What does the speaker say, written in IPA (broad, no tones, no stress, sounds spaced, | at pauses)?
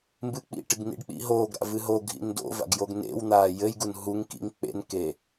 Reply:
m b ɨ k͡p ḭ ʈ ɨ ɡ n ḭ ɖ k͡p ḭ ɦ oː ɡ ɾ a̰ v ɨ ɦ o ɡʱ ḭ n d o̰ v a̰ ɡ j o ɡ n ḛ w n̪ aː j ɘ j ɡ u n ɦ u ŋ k ḭ ŋ k͡p ḛ n k e